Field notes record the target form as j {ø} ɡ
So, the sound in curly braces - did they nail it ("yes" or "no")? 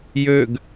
yes